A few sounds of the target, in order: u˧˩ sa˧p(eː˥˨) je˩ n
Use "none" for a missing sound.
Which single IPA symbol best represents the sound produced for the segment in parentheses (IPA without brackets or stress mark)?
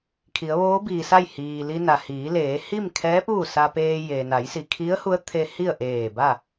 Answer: eː˧